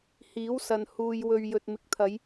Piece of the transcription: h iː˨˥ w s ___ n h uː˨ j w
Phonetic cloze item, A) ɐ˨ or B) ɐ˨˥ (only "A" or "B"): A